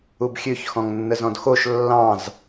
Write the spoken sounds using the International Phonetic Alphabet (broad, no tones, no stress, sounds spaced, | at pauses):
u b xʲ ø ç x ɔ̃ ŋ nː ə z ɔ̃ d x o ʃ lː ɑ̃ z